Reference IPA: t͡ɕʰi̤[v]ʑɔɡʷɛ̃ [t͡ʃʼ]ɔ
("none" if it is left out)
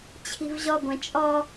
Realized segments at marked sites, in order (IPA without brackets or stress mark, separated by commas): v, t͡ʃʼ